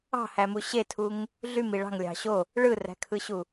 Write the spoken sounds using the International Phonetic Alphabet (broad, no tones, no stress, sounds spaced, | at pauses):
ɑ̤ h æ m u ɕ e tʰ u ŋ | ɮ y m i ɭ ɑ̤ ŋ lʲ ɑ̤ ɕ o | ɭ ɯ r æ̤ kʰ ɯ ɕ u